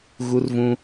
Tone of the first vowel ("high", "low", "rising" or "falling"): high